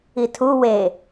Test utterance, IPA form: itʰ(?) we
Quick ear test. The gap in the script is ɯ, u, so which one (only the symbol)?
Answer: u